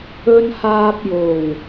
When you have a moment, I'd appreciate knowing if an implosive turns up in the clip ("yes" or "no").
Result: no